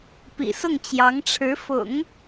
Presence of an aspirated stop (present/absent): present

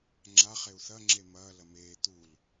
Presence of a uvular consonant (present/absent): present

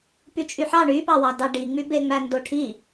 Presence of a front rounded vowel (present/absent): present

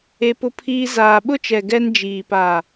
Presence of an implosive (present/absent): present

